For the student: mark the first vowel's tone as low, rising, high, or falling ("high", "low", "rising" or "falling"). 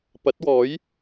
rising